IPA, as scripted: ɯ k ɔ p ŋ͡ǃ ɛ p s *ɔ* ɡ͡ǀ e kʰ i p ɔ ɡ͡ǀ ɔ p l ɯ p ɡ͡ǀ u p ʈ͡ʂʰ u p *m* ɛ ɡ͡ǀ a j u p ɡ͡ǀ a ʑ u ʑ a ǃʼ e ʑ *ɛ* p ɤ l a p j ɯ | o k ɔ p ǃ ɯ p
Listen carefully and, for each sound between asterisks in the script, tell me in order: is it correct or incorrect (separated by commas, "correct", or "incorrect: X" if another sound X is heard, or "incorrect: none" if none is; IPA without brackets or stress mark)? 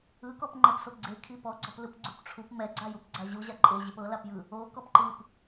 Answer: incorrect: o, correct, incorrect: e